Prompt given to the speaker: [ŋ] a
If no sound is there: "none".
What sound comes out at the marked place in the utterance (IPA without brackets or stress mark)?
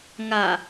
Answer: ŋ